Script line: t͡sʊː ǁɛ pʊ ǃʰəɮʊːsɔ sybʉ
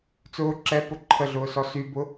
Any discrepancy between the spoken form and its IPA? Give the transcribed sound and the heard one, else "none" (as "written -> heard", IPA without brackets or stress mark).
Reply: ʉ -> ʊ